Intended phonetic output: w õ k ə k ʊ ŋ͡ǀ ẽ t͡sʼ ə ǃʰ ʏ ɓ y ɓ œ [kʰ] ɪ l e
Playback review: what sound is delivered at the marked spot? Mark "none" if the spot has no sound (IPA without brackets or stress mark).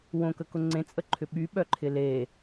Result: ǃʰ